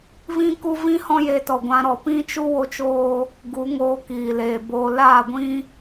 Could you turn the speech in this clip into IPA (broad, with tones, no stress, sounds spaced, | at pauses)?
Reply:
v ĩ˦ k u˦ v ĩ˦ h ɔ̃˦ j eː˧ t ɔ˨ ɡʷ ã˧ ɾ ɔ˨ p ĩ˦ t͡ʃ u˦ w o˦ t͡ʃ oː˦ | ɡ u˨˦ ŋ oː˧ k iː˨ l eː˨ b oː˧ l aː˦˨ ɡʷ ĩ˦